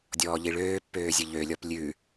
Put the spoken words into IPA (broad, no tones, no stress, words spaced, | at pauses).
dʲɔːʎiɭøːpːøː zʲəʎølʲɔp lʲʉ